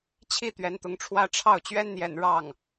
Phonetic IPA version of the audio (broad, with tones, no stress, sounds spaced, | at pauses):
t͡ɕʰ i˥˩ t̪ ɥ ɛ˧˥ n t̪ ʊ˧˥ ŋ ʈ͡ʂʰ w ä˥ ʈ͡ʂʰ ɑ˥˩ ʊ̯ t͡ɕ ɥ ɛ˥ n n̪ j ɛ̰˨˩ n ɻ ɑ˥˩ ŋ